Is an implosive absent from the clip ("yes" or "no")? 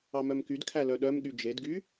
no